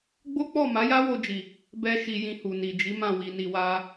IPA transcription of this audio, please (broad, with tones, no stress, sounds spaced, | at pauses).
ɡ͡b o˦ k͡p ɔ˦˨ m a˨˦ j a˦ w o˧ d͡ʒ i˨ | b ɛ˧ ʃ i˧ j ĩ˧ h u˨ n i˨ d͡ʒ i˨˦ m ã˦˨ w i˧ n i˧ w a˦